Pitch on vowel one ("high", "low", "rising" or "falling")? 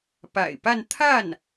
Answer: low